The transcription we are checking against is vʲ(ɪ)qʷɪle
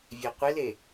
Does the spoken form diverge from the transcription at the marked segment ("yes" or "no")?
yes